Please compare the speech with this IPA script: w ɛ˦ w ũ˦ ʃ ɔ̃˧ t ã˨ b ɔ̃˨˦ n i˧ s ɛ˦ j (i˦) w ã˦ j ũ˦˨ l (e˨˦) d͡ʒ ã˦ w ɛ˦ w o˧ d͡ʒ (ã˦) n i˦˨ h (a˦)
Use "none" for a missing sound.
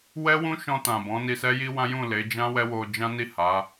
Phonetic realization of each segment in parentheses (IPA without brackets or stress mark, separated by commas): i˦, e˨˦, ã˦, a˨˦